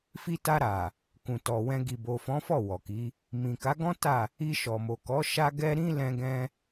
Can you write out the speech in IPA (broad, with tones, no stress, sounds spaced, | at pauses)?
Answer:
f i˧ t a˧ ɾ a˨ | k ũ˨ t ɔ˨ w ɛ̃˧ ɡ i˨ b o˨ f ɔ̃˨˦ f ɔ˦˨ w ɔ˨ k i˨˦ | m ĩ˨ k a˨˦ ɡ ɔ̃˦ t a˦˨ | i˧ ʃ ɔ˨ m o˨ k ɔ˨˦ ʃ a˦ ɡ ɛ˦ ɾ ĩ˦ l ɛ̃˧ ɡ ɛ̃˧